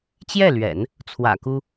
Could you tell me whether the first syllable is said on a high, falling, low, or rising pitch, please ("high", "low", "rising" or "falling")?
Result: falling